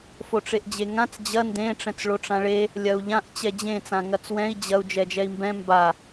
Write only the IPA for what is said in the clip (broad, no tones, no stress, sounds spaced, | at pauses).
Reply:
f o ʈ͡ʂ e ʔ d͡ʑ e ŋ ã t͡s d͡ʑ ɐ n d ẽ ʈ͡ʂ ɛ̃ t͡s ɭ o ʈ͡ʂ ã ɭ e | lʲ ɐ u̯ ʎ ã ʔ t͡ɕ ɛ d͡ʑ ẽ t͡s ã ŋ ɐ t͡s w ɛ̃ i̯ d͡ʑ ɐ u̯ d͡ʒ ɛ d͡ʒ ɛ i̯ m b ɛ̃ m b a